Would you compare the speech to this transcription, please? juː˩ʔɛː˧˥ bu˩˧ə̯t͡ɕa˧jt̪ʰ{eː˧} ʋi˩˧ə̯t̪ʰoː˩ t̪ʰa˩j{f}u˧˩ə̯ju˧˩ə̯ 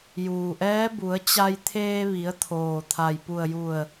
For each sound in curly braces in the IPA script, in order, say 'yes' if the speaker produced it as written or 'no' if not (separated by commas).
yes, no